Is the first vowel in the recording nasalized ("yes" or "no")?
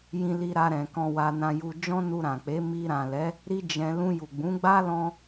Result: yes